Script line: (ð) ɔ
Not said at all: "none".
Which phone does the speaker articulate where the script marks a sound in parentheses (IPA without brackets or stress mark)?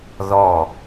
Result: ð